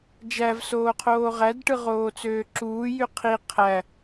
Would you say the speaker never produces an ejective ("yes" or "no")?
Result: yes